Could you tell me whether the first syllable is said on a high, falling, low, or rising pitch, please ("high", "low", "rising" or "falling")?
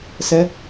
high